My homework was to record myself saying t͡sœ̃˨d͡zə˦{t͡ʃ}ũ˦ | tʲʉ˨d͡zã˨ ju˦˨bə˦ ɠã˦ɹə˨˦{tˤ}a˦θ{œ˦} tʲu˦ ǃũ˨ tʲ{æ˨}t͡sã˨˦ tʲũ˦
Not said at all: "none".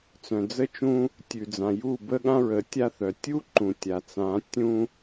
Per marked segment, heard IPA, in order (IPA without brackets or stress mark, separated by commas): t͡ʃ, tʲ, œ˨, a˨